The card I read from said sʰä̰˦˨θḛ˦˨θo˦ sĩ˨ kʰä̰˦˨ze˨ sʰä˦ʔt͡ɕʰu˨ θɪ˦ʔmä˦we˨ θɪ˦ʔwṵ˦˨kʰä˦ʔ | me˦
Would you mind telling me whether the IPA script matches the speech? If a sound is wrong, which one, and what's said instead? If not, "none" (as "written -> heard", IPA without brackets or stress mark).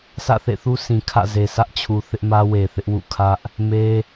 o˦ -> u˦